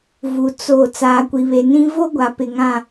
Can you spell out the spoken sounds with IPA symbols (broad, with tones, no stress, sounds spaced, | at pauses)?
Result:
v u˨ t͡s o˦˨ t͡s aː˨ kʷ i˨ β e˨ n ĩ˦ v o˦ ɡʷ a˨ p ɪ˨ ŋ ã˨